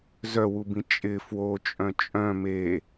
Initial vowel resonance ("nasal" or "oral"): oral